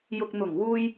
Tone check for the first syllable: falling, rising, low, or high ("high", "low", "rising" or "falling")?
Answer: low